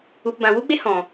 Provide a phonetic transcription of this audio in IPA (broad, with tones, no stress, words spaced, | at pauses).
u˨pbã˨wu˦ɡ͡be˦ hɔ̃˨